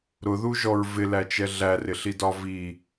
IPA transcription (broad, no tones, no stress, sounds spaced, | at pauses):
ɾ ʊ ð u ʒ ɔ ɹ v ɪ l æ t͡ʃ ɛ ɮ æ r ɪ ɬ i d ɒ v i